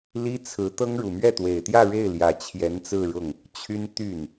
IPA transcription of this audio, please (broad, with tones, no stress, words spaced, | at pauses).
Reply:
li˥t͡sʰɹ̩˧˥t̪ɤ˥ŋ ɻu˨˩mɥɛ˥˩t̪we˨˩ɪ̯t̪jä˥˧ ɻe˥˩ɪ̯ljä˨˩ t͡ɕʰjɛ˧˥nt͡sɹ̩˥˧ɻʊ˥˩ŋ | t͡ɕʰy˥n t̪y˥˩n